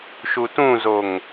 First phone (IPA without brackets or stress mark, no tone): ʃ